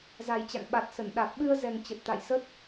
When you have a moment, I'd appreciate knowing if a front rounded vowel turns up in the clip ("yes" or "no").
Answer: no